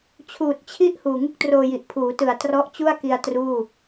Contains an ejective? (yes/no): no